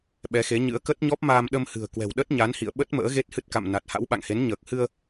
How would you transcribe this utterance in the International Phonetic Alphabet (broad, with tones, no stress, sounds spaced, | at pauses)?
ɓ ɛ˨˦ x e˨˦ ɲ ɨ̰˧˥ ə̯ k ə˦˥ t̚ ɲ ɔ˦˥ p̚ m aː˧ m ɗ ə˧ m h ɨ̤˨˩ ə̯ k w ɛ̤˨˩ w ɗ ə˦˥ t̚ ɲ a˨˦ n h ḭ˧˨ ə̯ ɓ ə˦˥ t̚ m ə̰ː˧˥ ɣ e˦˥ t̚ h ɨ˦˥ t̚ k a̰˧˨ m n a˨˩ t̚ h a̰˧˥ w ɓ a̰˧˨ ŋ h e˨˦ n ɲ əː˨˩ k̚ h ɨ˧ ə̯